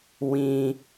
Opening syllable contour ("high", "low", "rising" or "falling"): low